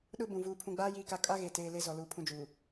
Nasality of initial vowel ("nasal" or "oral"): oral